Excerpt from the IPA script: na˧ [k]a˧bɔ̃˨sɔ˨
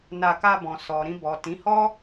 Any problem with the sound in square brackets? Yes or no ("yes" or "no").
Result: no